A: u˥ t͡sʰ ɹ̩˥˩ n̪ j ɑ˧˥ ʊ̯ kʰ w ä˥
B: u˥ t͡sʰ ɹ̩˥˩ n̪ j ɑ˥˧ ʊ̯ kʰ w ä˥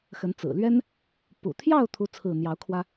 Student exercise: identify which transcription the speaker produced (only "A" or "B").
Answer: A